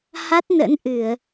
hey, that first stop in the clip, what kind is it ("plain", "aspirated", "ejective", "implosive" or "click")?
plain